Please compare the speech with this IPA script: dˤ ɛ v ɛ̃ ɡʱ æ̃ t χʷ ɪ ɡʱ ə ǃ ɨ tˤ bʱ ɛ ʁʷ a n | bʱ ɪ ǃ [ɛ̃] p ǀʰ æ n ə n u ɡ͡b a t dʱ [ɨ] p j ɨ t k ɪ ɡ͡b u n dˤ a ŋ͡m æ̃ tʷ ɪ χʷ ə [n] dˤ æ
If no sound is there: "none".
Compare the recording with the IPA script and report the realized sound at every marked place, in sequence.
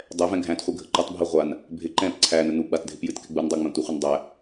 ɛ̃, ɪ, n

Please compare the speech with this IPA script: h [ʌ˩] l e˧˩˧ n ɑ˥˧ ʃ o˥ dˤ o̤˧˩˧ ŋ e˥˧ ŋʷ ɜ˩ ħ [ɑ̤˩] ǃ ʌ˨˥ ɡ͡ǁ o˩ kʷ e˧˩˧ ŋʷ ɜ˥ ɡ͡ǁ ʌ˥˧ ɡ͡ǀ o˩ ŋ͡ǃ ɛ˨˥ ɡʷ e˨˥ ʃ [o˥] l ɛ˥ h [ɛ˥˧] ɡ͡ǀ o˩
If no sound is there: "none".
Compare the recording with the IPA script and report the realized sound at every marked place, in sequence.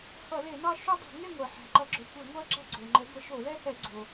ʌ˧˩˧, ɑ̤˩, o˧˩˧, ɛ˧˩˧

